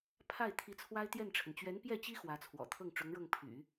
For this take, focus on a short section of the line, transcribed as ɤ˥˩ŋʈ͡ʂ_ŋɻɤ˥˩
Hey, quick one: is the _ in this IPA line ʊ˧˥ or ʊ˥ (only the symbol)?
ʊ˧˥